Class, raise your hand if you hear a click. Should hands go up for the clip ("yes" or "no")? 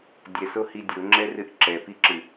yes